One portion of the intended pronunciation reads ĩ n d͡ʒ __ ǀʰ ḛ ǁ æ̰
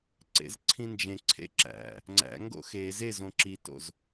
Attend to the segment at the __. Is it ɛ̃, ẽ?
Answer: ẽ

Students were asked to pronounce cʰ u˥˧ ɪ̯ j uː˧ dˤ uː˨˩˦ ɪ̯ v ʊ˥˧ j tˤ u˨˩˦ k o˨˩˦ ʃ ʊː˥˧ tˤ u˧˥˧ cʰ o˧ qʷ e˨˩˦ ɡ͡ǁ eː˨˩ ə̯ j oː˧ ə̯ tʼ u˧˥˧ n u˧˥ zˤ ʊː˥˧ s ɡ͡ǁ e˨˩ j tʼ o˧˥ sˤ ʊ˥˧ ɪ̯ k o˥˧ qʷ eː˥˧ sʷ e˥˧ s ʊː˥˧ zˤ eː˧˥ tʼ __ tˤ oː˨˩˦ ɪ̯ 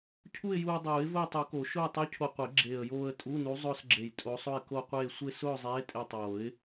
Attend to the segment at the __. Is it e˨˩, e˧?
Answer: e˧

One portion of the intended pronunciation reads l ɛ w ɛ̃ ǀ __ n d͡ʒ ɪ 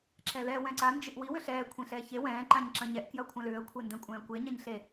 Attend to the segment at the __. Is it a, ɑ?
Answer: a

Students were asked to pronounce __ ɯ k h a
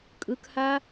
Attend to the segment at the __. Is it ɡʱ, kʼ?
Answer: kʼ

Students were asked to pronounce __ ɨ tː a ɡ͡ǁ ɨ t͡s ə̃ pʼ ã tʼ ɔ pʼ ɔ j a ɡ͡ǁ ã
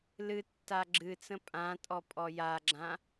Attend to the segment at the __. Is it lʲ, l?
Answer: l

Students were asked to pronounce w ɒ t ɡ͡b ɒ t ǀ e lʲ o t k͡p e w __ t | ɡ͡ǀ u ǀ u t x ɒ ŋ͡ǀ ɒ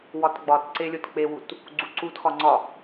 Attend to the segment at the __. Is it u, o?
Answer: u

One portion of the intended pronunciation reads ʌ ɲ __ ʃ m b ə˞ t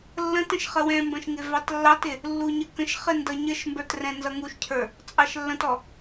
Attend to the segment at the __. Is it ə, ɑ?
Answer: ə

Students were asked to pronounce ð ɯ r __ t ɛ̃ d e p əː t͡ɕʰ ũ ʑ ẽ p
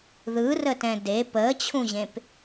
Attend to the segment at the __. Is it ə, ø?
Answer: ə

